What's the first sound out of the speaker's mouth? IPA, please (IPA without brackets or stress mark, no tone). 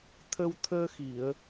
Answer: t̪ʰ